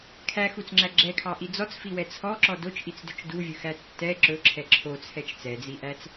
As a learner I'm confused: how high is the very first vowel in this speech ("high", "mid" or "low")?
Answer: low